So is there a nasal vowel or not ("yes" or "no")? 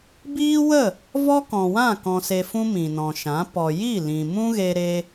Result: yes